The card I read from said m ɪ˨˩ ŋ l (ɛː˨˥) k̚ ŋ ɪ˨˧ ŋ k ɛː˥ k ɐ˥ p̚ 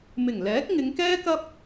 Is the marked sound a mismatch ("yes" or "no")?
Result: no